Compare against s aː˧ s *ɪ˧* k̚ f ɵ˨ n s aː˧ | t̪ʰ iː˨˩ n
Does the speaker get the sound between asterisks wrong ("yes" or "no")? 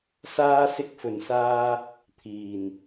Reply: no